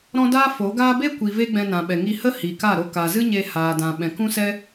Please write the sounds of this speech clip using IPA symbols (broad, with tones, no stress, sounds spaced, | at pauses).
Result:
ɾ ɔ̃˦ d aː˦ f o˨˦ ɡ aː˦ b e˦ kʷ i˨ v e˦ ɡ͡b ɛ̃˧ n ã˨ ɓ ɛ˨ ŋ i˧ h ə˦ h i˨ k a˦˨ ɾ o˧ k aː˨ z ɨ˦ ɲ e˧ h aː˨ d ã˨ ɓ ɛ̃˨ k ũ˦ s ɛ˦